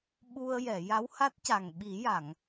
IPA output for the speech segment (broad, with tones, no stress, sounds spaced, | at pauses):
ɓ u˧ ə̯ j ɛ˨˩˨ j a˧˥ w h a˦˥ t̚ c a˨˩ ŋ ɓ i˨˩˦ j a˨˩˨ ŋ